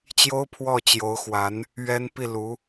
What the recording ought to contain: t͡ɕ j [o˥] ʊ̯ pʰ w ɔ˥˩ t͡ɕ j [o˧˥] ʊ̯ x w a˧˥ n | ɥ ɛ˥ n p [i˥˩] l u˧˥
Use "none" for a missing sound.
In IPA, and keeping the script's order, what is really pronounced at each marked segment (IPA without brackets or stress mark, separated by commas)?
o˥, o˧˥, i˥˩